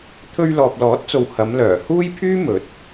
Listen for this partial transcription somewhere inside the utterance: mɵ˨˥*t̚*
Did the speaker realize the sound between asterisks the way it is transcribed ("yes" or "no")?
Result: yes